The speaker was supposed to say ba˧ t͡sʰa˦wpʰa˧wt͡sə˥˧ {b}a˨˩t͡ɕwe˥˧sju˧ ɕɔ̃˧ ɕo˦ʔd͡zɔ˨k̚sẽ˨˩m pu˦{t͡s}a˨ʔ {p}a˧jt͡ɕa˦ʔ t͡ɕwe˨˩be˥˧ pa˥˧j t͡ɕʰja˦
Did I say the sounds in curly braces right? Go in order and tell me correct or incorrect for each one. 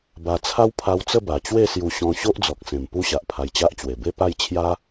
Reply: correct, incorrect: ɕ, incorrect: pʰ

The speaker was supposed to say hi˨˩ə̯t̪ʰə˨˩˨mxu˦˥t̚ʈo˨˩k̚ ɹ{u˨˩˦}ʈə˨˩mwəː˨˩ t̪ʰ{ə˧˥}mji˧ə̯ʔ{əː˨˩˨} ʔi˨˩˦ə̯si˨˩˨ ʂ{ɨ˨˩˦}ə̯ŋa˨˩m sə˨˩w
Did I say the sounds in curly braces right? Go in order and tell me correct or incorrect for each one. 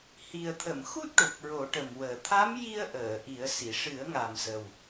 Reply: incorrect: o˨˩˦, incorrect: a˧˥, correct, correct

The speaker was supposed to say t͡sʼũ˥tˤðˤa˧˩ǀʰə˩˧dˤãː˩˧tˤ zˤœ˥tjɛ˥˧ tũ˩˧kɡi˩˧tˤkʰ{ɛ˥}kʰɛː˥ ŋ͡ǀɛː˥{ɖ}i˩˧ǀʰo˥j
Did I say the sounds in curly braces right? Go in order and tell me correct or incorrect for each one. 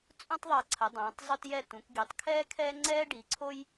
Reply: incorrect: ɛː˥, correct

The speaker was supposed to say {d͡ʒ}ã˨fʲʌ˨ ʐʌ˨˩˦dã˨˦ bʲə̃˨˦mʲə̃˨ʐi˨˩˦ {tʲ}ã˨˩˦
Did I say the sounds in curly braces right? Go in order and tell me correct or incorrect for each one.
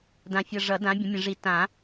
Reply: incorrect: d, incorrect: t

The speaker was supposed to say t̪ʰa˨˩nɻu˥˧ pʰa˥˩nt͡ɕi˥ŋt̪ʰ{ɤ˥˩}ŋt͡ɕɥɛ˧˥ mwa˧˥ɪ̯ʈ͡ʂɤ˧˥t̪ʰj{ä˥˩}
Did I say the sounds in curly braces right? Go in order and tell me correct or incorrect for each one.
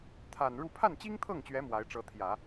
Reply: correct, incorrect: ä˨˩˦

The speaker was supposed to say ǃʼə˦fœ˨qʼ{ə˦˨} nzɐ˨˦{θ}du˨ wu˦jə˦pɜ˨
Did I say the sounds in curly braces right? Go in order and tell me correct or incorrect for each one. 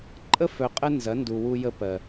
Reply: incorrect: ə˦, incorrect: n

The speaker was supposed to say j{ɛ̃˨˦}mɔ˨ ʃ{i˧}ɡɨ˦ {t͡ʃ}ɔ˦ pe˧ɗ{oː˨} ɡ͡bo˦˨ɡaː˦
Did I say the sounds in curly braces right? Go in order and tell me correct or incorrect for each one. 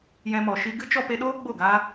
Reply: incorrect: ɛ̃˧, correct, correct, incorrect: oː˦

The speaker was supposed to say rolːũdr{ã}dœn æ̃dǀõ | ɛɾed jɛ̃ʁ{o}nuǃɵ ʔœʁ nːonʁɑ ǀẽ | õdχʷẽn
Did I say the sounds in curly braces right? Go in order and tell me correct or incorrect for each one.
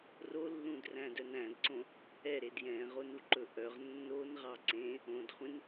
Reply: incorrect: æ̃, correct

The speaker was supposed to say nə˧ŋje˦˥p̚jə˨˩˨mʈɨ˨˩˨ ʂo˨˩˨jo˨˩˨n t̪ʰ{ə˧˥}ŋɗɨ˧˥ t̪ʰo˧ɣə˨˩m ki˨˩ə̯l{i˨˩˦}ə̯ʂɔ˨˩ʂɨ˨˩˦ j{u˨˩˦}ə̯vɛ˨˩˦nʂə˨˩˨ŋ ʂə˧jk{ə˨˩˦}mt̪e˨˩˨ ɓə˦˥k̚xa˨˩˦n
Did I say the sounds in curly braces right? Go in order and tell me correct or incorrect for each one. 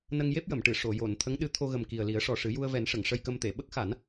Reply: correct, correct, incorrect: u˧, incorrect: ə˧

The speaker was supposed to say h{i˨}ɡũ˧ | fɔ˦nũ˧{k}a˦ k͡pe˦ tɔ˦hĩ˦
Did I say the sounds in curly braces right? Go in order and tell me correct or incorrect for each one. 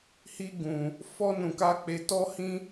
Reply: incorrect: i˦, correct

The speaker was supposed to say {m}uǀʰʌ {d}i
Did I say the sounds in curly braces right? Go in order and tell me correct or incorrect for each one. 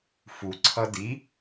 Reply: incorrect: f, correct

